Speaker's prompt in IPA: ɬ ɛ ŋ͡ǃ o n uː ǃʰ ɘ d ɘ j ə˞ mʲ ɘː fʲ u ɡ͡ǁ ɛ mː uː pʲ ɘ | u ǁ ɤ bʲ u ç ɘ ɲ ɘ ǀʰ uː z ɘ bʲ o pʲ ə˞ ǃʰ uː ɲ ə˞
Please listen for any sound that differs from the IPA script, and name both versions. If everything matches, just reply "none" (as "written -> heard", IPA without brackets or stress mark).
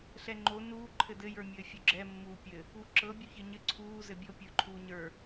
none